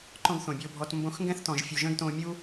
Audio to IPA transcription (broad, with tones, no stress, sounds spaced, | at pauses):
ǃ ɔ̃˧ ɡ θ õ˨ bʲ o˧ bʱ ɔ˧ t m b õ˦ x ŋ ɡ ɛ̃˦ θ t ɔ̃˨ ʒ fʲ u˨ ʒ ə̃ː˦ ɡ t õː˧ mʲ u˦